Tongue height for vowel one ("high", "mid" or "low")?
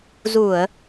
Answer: high